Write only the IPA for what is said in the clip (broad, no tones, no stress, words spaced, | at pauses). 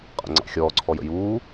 qʼə̰ŋ͡ǀɑ̰xʲɔː ǀʰɔjə̰juː